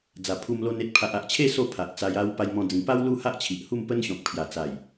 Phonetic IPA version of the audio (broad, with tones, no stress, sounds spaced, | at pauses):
d͡z a˨˩ pʰ u˧ m l o˧ n e˦ t̚ pʰ a˨ ʔ a˨ ʔ t͡ɕʰ e˥˧ s o˥˧ pʰ a˨ ʔ t͡s a˧ j a˦ w p a˧ j m ɔ̃˧ d͡z ĩ˨˩ p a˦ w l u˦ h a˦ ʔ t͡ɕʰ i˨ ʔ h u˥˧ m p ə˦ n ɕ ɔ̃˨ k̚ pʰ j a˨˩ t͡s a˨˩ j